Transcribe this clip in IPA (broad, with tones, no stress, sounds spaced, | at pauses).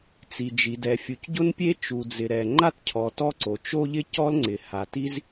t͡s i˩ d͡ʒ i˩ d ɛ˩ fʲ u˩ c ɟ ʊ˥ n pʲ e˥ t͡ʃ u˩ d͡z ɪ˩ ɾ ɛ˩ ŋ͡ǃ a˥ t cʰ ɔ˩ t ɔ˥ ǀ o˩ t͡ʃ o˥ ʎ ɪ˥ c ɔ˥ l ŋ͡ǀ ɪ˩ h a˩ t i˥ z